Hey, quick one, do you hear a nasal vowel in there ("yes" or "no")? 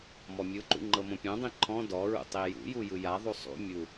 yes